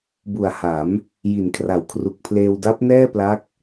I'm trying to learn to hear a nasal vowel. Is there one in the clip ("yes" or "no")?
no